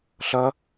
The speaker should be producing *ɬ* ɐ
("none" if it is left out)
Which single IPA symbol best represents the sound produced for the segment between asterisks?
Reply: ɬ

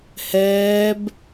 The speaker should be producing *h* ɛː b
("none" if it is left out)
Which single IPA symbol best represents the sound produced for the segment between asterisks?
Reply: h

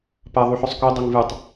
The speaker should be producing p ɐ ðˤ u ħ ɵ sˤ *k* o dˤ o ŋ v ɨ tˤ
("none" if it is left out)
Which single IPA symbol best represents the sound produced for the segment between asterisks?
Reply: k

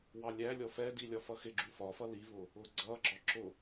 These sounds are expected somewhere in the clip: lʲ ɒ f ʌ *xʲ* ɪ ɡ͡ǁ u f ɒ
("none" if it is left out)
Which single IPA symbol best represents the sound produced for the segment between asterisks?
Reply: x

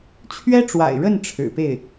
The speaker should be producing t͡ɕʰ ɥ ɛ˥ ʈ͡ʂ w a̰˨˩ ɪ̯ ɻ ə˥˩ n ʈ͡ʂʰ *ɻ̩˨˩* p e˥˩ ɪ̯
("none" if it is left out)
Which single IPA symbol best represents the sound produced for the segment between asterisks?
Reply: ɻ̩˨˩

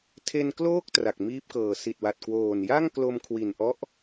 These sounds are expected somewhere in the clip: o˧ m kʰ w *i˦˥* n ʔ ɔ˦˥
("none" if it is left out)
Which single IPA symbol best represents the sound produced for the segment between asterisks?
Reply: i˨˩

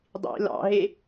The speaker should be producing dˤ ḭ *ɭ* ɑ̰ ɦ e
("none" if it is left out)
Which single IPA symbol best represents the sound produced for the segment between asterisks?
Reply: l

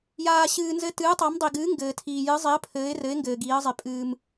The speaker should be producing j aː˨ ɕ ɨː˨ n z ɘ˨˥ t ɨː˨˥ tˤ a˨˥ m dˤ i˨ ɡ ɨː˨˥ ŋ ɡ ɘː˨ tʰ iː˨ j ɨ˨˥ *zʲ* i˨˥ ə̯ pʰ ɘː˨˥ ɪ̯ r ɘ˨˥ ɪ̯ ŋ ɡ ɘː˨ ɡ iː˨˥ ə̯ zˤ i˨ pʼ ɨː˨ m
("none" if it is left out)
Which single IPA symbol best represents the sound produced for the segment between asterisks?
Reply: zˤ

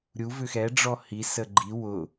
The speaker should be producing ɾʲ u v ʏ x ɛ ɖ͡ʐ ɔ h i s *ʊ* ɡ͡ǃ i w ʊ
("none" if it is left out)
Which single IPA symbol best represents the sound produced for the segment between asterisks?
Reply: ə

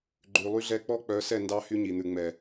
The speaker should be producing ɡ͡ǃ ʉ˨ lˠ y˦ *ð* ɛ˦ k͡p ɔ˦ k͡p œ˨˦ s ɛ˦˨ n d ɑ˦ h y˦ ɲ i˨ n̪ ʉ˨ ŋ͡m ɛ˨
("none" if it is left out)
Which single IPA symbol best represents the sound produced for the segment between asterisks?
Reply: ɮ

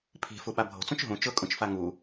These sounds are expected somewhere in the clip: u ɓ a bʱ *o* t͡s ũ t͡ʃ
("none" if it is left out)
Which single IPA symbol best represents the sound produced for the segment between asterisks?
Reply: o̤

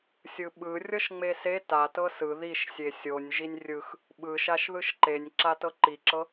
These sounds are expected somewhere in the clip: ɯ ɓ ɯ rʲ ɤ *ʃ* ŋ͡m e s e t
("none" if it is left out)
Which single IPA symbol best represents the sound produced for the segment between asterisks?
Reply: ʃ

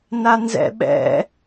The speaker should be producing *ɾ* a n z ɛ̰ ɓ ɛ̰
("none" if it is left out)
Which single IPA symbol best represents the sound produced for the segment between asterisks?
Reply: n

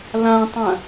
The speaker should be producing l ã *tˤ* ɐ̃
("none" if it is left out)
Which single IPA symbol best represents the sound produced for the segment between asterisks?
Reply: tˤ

